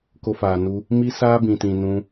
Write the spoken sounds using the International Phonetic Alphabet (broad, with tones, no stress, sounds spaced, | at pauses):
k o˧ f aː˨ n u˧ | m i˦ s aː˦ b ĩ˨ t ĩ˨ n ũ˧